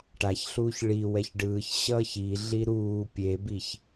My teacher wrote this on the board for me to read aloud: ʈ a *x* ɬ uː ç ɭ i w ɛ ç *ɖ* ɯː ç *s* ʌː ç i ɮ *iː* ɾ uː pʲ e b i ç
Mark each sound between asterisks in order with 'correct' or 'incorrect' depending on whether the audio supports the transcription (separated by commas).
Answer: incorrect, correct, incorrect, incorrect